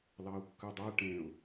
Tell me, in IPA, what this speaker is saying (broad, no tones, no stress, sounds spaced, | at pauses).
l ɑ ʊ̯ kː ʉ dˤ ɜ ʈ ẽ ʊ̯